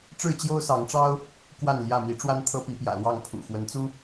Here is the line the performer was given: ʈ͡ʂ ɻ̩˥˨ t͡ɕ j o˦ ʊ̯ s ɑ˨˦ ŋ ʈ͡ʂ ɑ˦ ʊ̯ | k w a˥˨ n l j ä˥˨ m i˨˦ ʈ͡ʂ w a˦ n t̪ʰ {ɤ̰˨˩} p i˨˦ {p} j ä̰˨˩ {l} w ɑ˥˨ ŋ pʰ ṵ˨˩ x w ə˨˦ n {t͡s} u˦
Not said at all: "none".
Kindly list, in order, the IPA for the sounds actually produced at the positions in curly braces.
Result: ɤ˦, p, l, t͡s

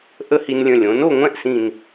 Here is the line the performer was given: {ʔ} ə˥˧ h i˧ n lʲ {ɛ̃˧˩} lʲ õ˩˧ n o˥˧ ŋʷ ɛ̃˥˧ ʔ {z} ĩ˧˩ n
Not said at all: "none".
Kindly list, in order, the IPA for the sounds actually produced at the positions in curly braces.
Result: ʔ, ə̃˧˩, s

